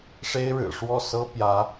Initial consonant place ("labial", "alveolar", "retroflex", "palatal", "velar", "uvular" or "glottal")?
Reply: retroflex